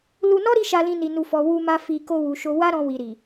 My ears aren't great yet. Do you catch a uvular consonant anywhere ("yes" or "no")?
no